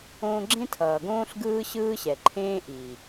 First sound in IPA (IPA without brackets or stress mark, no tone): õː